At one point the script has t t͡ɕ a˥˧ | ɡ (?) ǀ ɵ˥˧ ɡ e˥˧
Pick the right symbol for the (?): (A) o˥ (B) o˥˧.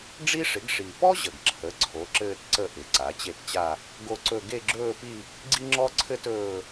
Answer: B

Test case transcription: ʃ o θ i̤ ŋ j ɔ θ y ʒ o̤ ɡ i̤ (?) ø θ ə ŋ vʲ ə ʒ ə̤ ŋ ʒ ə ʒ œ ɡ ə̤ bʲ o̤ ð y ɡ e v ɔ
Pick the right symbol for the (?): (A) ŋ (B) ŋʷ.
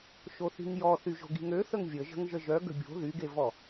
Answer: A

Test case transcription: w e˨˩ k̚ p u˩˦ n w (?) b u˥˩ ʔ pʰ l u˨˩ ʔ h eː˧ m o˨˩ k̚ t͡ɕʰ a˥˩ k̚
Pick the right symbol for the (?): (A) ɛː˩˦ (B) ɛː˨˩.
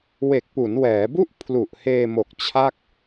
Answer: A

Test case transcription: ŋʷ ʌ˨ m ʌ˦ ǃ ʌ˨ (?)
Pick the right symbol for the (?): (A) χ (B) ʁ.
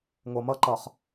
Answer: A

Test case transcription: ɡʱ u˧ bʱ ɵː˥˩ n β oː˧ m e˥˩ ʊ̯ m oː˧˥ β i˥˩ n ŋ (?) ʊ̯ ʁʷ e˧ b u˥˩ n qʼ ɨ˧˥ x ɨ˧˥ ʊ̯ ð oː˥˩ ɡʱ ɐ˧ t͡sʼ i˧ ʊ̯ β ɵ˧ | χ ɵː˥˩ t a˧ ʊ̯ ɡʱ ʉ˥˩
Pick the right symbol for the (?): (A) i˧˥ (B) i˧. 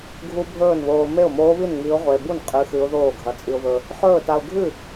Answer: A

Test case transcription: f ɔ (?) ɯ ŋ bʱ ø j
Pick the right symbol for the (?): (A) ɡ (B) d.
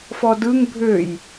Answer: B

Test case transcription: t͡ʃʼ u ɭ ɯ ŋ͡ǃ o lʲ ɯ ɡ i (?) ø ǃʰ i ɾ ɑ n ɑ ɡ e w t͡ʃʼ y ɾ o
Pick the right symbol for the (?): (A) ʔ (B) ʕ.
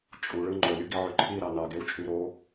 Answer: B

